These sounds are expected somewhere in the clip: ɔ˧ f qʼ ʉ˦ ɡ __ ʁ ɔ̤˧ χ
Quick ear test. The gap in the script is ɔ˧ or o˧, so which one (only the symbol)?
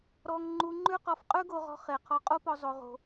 o˧